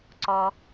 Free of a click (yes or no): no